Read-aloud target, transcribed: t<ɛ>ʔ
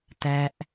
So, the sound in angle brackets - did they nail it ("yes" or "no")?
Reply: no